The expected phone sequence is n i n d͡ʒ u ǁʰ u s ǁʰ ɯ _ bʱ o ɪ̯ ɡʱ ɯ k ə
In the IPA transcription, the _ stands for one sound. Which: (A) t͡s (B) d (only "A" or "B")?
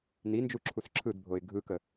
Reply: B